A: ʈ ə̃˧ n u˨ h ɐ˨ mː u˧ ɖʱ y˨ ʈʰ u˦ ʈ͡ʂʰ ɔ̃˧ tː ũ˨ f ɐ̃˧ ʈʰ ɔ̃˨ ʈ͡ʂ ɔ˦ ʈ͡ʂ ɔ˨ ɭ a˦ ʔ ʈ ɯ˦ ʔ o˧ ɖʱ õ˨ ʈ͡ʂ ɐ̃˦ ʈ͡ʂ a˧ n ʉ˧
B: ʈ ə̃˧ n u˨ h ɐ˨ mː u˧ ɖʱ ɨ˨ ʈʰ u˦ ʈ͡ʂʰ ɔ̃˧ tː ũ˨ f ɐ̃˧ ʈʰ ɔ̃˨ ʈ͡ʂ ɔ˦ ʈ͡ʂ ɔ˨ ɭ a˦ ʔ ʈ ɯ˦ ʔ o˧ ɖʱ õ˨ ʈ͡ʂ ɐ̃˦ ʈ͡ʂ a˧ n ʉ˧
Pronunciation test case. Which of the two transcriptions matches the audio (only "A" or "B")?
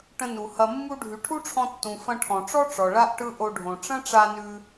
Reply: A